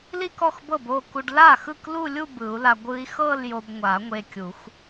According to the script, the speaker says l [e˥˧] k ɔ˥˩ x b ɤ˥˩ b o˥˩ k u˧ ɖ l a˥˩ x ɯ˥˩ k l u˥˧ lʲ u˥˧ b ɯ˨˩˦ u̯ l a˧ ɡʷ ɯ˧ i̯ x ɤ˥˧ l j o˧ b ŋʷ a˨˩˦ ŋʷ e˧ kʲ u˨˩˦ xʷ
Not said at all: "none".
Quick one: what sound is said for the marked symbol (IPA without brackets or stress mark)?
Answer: i˥˧